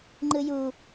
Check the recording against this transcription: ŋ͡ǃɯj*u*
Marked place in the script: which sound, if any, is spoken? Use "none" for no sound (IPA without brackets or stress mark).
u